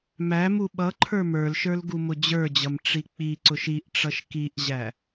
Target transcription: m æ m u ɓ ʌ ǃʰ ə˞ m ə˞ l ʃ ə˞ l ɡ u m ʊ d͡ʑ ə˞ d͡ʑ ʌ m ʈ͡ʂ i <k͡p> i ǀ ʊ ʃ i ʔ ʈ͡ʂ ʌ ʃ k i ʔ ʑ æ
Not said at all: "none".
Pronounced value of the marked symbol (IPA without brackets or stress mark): k͡p